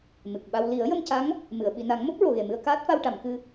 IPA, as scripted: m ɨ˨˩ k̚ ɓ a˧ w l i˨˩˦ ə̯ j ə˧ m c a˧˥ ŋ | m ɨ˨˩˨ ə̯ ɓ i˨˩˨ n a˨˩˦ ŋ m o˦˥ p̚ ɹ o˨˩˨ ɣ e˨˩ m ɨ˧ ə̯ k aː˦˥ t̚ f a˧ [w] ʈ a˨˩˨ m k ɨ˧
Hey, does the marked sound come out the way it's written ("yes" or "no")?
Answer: yes